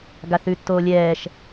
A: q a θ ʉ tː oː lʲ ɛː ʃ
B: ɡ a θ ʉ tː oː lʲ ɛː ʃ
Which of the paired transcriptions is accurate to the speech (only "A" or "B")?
B